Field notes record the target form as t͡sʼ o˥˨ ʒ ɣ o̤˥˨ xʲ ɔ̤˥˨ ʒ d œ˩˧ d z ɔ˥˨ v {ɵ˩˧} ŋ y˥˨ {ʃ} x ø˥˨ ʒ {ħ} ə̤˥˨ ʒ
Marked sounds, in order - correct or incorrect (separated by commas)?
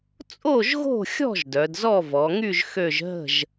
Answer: incorrect, incorrect, incorrect